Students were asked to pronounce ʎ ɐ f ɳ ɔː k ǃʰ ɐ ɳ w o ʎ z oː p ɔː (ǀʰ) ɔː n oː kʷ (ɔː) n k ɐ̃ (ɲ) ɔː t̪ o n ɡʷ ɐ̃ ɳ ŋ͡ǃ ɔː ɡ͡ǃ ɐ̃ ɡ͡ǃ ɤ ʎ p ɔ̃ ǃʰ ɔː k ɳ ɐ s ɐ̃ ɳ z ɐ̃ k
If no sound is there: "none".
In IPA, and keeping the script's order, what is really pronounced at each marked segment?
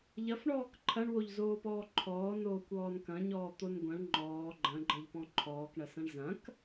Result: ǃʰ, ɔː, ɲ

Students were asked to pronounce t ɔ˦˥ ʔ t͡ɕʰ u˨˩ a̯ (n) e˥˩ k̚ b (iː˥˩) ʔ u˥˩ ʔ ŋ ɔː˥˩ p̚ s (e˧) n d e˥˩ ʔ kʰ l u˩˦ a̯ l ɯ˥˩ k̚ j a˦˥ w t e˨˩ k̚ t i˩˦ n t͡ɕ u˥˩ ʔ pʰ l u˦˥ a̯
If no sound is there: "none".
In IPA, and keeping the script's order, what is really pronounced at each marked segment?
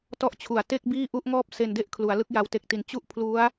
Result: t, iː˥˩, e˧

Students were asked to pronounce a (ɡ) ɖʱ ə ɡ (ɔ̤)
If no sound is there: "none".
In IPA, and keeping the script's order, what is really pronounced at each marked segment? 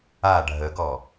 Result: none, ɔ

